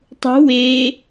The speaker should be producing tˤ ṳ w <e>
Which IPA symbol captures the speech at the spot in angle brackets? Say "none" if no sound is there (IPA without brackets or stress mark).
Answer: eː